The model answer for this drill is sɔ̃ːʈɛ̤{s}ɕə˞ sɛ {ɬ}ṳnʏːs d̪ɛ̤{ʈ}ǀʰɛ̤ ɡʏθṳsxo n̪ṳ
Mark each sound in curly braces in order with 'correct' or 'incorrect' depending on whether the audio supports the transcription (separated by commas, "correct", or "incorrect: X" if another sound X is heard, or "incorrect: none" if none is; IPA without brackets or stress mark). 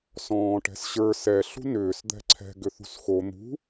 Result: correct, correct, incorrect: none